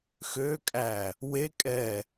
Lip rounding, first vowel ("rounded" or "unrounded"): rounded